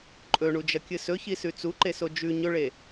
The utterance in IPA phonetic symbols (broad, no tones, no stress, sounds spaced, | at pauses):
ǃʼ ɵ ɳ u d͡ʒ ɐ kʲ ɨ s ɵ ç i s ʉ t͡s u ǃ e s o d͡ʒ ʉ ɲ ɵ ɭ e